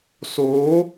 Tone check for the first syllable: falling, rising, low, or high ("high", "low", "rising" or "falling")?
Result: rising